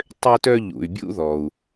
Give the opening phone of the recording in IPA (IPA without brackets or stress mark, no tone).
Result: tˤ